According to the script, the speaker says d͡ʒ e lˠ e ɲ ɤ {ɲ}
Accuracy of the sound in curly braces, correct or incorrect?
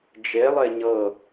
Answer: incorrect